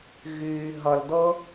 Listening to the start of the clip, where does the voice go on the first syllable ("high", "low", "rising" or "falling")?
low